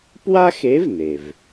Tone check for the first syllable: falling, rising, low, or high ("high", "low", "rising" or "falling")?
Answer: high